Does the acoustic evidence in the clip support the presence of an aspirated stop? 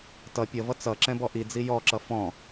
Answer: no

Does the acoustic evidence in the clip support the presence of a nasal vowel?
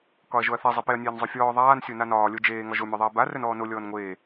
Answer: no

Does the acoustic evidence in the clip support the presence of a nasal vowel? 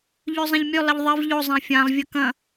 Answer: yes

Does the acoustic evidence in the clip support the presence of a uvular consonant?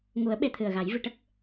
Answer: no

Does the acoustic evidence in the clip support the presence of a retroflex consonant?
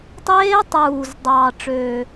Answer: yes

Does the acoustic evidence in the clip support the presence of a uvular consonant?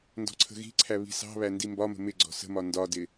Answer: no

